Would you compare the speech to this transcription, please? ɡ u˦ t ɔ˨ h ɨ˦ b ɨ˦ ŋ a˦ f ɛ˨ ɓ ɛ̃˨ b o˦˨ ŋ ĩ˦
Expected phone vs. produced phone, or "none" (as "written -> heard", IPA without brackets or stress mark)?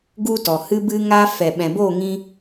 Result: none